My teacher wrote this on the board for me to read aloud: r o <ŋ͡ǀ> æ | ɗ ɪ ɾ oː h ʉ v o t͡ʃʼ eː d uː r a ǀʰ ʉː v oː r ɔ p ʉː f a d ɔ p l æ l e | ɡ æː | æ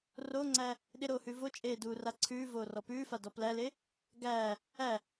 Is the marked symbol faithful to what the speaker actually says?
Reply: yes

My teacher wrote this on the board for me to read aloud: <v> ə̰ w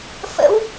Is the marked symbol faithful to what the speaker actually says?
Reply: no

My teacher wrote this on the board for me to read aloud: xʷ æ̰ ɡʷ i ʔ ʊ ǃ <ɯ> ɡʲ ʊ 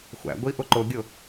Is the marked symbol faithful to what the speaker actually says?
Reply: no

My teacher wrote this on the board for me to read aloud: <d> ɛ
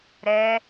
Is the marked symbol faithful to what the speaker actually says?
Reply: no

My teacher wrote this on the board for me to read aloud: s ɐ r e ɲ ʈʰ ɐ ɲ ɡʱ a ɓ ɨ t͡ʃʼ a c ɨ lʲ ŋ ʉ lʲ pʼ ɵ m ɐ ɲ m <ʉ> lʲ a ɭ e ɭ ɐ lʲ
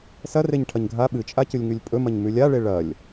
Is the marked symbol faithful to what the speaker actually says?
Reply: yes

